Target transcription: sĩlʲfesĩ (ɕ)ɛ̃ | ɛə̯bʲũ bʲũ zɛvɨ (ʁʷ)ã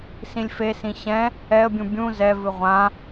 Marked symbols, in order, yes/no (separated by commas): yes, yes